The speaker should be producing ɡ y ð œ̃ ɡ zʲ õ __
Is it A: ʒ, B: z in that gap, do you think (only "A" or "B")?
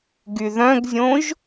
A